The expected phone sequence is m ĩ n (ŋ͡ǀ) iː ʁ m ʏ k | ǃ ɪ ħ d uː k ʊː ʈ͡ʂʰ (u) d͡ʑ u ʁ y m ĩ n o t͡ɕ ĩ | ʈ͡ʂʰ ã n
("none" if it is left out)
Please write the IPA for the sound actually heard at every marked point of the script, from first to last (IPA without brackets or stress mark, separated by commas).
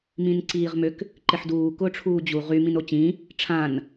ǀ, uː